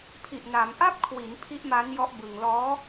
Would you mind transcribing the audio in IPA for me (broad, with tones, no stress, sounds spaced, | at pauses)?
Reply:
pʰ i˨˩ ʔ n a˩˦ m ʔ a˦˥ p̚ kʰ w i˩˦ n pʰ i˦˥ ʔ m a˦˥ n j ɔ˦˥ ʔ b ɯ˧ ŋ l ɔː˦˥